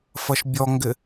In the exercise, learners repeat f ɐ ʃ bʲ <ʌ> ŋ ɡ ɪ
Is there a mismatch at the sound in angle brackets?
yes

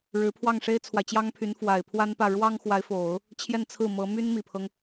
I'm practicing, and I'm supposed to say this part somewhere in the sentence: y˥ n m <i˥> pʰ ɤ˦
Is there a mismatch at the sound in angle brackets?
yes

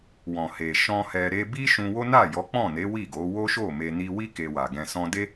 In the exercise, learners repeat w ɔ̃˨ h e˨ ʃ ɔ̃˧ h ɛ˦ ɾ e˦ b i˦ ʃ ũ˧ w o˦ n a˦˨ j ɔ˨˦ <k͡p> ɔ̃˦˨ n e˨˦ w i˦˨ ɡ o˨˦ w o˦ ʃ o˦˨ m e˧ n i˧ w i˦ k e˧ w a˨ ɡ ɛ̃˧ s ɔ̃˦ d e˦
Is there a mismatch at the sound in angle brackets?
no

